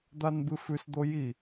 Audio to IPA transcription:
d̪ a n b ɨ f ʉ s d̪ o j i

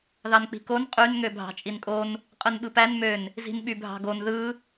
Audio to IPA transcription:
ð ɑ n k͡p i̤ k o n qʼ y n ŋ ø bʱ ɑ̤ t͡ʃʼ i n kʼ o n | qʼ ɯ n ɓ ɯ p æ n m ø n | z i̤ n ɓ y bʱ ɑ̤ ɡ o n ð ɯ

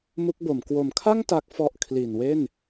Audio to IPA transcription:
m u˦˥ k̚ b o˨˩ m k w o˩˦ m kʰ a˥˩ ŋ t a˦˥ k̚ f ɔ˦˥ ʔ kʰ l i˨˩ n w e˥˩ n

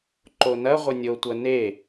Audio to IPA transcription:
ǃ o n ɐ ʁʷ ɘ nʲ o tʷ ɐ n e

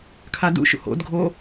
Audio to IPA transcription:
kʰ a d ṵ ʃ ṵ h o̰ d ɡʱ o

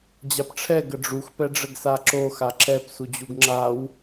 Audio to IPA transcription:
d͡ʑ a p ʈ͡ʂʰ ɛ ɡ ə ɖ͡ʐ u x p ɛ ɖ͡ʐ ə ɡ s a ǁ o x a ǁ ɛ p s u d͡ʑ u ɡ ŋ͡ǁ a w

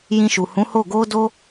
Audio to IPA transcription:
j ĩ˧ ʃ u˨ h ũ˨˦ h o˦˨ ɡ o˧ d o˧

